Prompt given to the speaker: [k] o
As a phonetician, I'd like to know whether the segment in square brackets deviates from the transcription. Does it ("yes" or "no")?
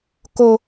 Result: no